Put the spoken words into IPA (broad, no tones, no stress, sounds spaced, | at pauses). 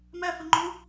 m æ f ə ŋ͡ǃ u